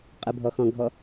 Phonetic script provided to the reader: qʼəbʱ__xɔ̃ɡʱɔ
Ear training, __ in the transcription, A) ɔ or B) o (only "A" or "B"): A